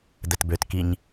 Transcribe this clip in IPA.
dɘtbøtkiɲ

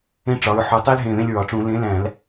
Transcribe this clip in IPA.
ẽ˦ʈ͡ʂɒ˩˧ɹ ħu˩˧tˤe˦lɦẽ˨˩ ðẽ˦lʲɹɒ˩˧ʈ͡ʂũ˧˩˧ lẽ˨˥læ̃˧˩˧l

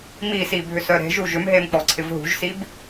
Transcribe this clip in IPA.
misibʱʏsœ ɾe̤ʒu ʒʏmɦemk͡pɔǀʰɪv ɦṳʒsib

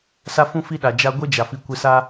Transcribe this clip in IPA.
sa˦fũ˦ fi˦ɗa˨d͡ʒa˦ ɡʷe˦d͡ʒa˨fi˨ kʷe˦sa˦

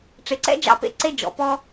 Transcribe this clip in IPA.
ʈ͡ʂe˨ǀɛ̰˦d͡ʒɑ̰˧ pḛ˧ǀe˦ d͡ʒɔ̰˨pɔ˦

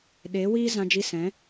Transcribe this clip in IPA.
ɗeː˨˦wiː˦zã˧d͡ʒi˧ sɛ̃˨˦

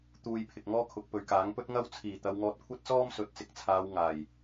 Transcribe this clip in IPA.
t̪uː˧jpʰɪ˨k̚ŋɔː˥ kʰʊ˨˥k̚pɵ˨˧ɥkaː˨˥ŋ pɵ˥t̚ŋɐ˥w t͡sʰiː˨˩ t̪ɐ˨˧wŋɔː˧t̚kʷʰɐ˥t̚t͡sɔː˥m sɵ˨t̚t͡sɪ˨˥k̚t͡sʰaː˨˧w ŋaː˨˩j

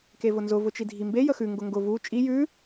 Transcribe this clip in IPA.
kevʊnzʊ vʊt͡ʃidʱimbe jəxʉ ŋɡʊŋɡʊ vu t͡ʃʼi jʉ

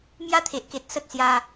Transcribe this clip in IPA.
mja˦t̪ʰe˨ʔ ke˨t̚ sə˦t̚sja˧

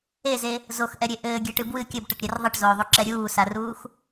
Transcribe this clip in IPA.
eze | zoxʔɛɾʲe ʔɘːɡʲeʈɨ bwɨ kʲɘbʈɐʈɾʲɛr ðˤɨʈzoːðˤuǁɛ ɾʲuːsaruːx

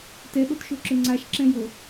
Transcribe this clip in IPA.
tɛɓotʃoǁʏ ŋ͡ǀaʃǁɛ̃jo

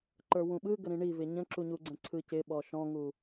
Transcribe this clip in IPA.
ǃə˞wũɓɯ ɡəɾĩɳivɪ ɲə̃ǁuɲuɡ͡ǀə̃ ǀʰɯcɪɓɔ ʃɔ̃ŋu

